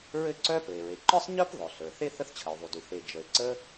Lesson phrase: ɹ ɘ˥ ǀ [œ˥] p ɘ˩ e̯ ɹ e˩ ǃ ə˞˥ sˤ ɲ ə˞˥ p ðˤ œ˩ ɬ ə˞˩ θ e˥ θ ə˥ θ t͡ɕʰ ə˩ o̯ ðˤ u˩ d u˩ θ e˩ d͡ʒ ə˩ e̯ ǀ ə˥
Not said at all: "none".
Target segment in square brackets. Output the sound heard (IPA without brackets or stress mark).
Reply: œ˥